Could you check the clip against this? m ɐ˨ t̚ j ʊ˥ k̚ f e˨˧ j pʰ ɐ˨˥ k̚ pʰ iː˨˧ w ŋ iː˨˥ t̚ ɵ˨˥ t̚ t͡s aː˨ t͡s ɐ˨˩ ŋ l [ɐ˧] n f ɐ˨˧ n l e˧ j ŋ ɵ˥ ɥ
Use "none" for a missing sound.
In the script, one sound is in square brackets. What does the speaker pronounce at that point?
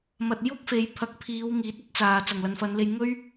ɐ˨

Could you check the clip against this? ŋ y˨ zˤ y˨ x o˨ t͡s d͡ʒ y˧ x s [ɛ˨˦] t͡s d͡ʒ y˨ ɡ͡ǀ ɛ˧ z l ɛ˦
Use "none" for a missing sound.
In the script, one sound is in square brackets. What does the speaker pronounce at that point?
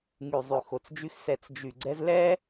ɛ˨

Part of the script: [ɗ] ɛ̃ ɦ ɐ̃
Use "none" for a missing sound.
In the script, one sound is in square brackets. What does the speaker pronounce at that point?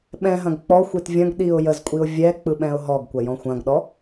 ɓ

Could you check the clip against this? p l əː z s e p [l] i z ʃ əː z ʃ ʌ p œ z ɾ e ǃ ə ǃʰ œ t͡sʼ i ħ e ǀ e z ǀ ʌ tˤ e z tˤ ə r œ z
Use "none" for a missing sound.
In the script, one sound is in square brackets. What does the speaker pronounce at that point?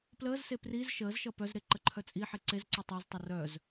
r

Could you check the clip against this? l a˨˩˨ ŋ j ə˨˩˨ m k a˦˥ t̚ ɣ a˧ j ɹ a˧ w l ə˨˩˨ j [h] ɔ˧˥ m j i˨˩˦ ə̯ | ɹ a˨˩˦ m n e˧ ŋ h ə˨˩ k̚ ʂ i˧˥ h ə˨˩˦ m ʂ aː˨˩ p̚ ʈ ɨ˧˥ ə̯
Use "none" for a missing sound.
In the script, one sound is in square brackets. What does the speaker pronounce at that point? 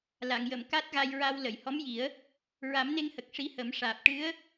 h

